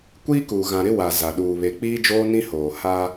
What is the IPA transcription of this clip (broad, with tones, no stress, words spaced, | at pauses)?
kʷiː˦kuː˨ ɣã˨ɾɪ˦ wa˨ za˨ ɗuː˨βe˨ k͡piː˦d͡ʒoː˦nĩ˦hoː˨ ha˦